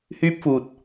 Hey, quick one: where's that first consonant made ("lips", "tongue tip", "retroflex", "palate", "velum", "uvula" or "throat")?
throat